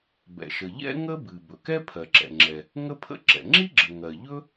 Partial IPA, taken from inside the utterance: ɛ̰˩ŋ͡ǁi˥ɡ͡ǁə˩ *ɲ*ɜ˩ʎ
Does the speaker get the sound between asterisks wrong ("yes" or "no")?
yes